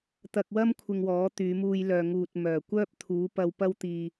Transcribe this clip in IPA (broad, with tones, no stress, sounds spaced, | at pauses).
t̪ ɐ˧ k̚ w ɐ˥ m kʷʰ ɪ˧ ŋ w ɔː˨˥ t̪ yː˨˧ m uː˧ j l œː˨ ŋ uː˨ t̚ m œː˨˩ kʷ œː˥ p̚ t̪ʰ uː˨˥ p ɐ˧ w p ɐ˥ w t̪ iː˧